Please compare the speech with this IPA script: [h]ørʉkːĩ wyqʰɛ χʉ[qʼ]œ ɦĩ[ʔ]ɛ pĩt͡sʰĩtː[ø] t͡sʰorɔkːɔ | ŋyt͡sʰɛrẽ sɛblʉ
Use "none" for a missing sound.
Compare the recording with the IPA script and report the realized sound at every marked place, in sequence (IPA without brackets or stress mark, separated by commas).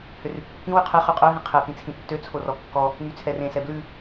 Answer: h, qʼ, qʰ, ø